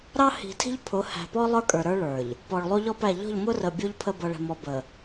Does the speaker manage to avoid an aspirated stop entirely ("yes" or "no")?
no